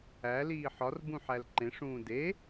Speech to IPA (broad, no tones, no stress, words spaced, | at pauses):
æ liːħɒrbũ ħælǃẽʂũː de